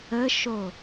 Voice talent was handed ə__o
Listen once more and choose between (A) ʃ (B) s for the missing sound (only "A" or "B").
A